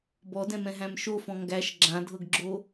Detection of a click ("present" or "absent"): present